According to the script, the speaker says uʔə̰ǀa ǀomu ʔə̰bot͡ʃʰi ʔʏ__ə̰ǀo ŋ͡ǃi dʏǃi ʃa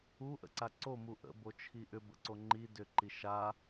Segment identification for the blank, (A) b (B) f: A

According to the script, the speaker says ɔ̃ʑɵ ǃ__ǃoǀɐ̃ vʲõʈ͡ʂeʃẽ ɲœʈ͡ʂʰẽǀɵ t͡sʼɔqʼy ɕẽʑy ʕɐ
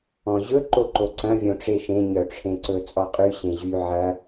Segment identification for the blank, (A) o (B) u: A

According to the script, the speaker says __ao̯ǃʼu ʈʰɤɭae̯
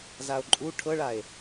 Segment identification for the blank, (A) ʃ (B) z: B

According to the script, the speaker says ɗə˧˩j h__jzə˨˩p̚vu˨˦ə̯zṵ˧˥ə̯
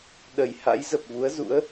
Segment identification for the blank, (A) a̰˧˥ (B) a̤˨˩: A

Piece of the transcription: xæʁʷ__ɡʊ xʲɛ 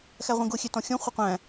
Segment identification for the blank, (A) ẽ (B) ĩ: B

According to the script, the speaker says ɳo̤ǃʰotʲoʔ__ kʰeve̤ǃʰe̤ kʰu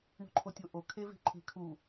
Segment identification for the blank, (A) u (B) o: B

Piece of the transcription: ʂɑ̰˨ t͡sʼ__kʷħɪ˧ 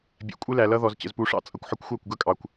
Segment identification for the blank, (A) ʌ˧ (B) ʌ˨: A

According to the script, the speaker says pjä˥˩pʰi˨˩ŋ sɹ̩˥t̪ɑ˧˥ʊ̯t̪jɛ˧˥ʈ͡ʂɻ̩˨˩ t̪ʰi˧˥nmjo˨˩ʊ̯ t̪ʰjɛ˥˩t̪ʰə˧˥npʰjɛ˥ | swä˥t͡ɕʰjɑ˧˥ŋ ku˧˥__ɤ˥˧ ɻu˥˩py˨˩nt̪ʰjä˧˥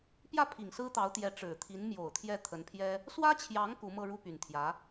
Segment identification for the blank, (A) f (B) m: B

